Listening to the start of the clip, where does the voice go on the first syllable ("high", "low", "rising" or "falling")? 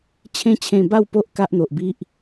high